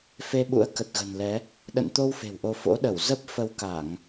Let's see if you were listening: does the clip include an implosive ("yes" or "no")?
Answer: yes